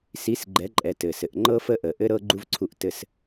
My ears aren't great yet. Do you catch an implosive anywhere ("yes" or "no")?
no